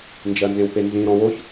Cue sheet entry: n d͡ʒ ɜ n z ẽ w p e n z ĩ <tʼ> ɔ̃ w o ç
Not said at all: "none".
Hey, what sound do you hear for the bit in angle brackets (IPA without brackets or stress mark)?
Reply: ɾ